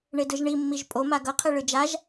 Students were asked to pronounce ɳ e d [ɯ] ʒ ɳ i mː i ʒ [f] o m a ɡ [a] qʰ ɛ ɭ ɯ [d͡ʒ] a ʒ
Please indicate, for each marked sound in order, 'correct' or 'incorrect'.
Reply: correct, incorrect: pʼ, incorrect: ʌ, correct

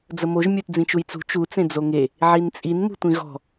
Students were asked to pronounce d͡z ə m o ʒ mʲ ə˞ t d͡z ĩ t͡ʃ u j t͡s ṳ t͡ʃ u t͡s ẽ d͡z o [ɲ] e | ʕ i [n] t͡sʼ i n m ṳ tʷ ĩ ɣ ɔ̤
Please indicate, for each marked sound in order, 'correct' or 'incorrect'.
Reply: incorrect: ŋ, correct

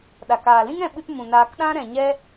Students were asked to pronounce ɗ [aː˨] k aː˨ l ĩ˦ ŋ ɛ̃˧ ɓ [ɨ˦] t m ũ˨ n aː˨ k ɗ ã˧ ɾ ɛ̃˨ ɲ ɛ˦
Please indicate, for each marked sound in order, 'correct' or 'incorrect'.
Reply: incorrect: a˨, incorrect: ɨ˧

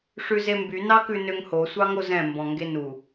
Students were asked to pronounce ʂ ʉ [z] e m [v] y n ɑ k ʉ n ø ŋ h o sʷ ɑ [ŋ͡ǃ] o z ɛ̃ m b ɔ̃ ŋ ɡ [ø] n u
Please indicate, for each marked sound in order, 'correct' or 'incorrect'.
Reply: correct, incorrect: b, incorrect: ŋ, incorrect: e

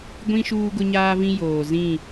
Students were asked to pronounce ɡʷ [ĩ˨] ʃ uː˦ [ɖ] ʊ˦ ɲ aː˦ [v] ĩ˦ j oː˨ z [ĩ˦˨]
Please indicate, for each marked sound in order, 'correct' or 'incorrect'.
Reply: incorrect: ĩ˦, incorrect: ɡ, correct, correct

